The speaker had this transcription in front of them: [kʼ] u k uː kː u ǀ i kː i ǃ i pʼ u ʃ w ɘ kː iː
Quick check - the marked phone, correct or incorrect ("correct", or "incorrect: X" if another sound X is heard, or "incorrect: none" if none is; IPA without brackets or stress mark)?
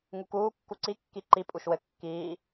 incorrect: ŋ